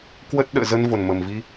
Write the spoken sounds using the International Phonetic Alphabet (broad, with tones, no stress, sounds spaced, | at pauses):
k w ə˦˥ t̚ ɗ ə̰ː˧˨ z ə˧ n v o˨˩ n m ə˨˩ m v i˧